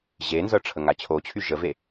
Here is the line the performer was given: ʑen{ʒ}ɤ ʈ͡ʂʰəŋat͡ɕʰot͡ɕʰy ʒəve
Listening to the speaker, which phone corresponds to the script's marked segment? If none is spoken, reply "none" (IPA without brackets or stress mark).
z